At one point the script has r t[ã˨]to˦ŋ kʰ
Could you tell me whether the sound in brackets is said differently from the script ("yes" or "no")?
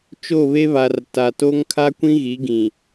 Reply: yes